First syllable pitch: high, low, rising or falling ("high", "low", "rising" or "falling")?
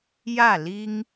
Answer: falling